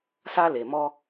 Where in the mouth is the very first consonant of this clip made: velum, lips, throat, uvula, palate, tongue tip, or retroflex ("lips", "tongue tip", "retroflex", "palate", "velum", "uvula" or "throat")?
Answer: tongue tip